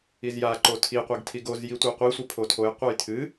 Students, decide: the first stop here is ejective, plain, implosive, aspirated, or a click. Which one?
click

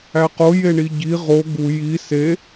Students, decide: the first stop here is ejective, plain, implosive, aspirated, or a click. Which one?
plain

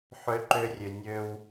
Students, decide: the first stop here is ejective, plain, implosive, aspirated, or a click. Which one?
click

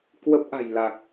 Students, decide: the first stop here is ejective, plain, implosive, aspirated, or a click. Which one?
plain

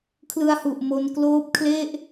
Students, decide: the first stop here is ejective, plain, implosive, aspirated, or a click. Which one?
aspirated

